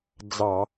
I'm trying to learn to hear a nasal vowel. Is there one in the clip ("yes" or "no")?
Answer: no